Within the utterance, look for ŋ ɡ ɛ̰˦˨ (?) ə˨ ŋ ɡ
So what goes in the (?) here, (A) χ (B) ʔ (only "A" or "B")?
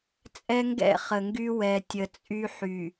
A